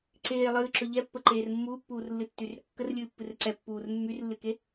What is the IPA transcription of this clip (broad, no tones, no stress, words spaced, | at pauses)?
ǀeː lˠɨːǁɵ ʎɛpːəǃeːr mːuːpːuːrlːɨtːyr kːərlʲɨːpːɨr ǀɛpːuːr mːyrlːɨke